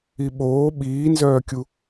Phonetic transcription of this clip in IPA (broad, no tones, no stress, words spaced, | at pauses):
iɓoː ɓiːnzœːkʲu